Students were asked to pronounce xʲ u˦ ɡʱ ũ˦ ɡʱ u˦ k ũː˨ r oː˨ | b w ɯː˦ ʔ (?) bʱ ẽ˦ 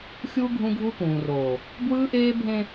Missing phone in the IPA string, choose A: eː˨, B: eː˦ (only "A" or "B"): B